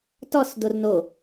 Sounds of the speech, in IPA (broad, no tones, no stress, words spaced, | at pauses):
tɔs dorno